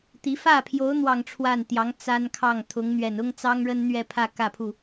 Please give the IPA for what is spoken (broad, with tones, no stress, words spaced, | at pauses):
t̪i˧˥ fä˥˩pʰjo˧˥ʊ̯ n̪wɑ˥˧ŋʈ͡ʂʰwa˥˩nt̪jɑ˧˥ŋ t͡sa˥n kʰɑ˥˩ŋt̪ʰʊ˧˥ŋ n̪ɥɛ˨˩nʊ˥ŋt͡sɑ˥ŋ ɻə˥nn̪ɥɛ˥˧pʰä˥˧ kä˥˧pʰu˥˩